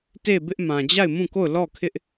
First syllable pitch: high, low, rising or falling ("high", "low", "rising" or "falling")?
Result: falling